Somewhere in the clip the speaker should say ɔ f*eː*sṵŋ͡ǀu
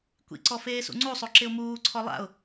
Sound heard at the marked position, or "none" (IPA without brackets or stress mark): eː